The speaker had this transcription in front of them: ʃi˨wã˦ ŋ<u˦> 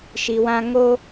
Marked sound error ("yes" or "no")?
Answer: yes